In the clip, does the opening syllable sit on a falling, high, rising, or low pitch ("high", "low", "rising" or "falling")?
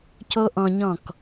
high